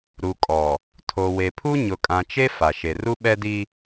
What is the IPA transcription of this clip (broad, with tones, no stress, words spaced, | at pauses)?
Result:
ɾu˨kʼɔ˨ | tʰo˨we˨pʰu˦ ɲʊ˨kʼã˨t͡ʃe˦ fa˨ ʃe˨ru˦ ɓɛ˦di˦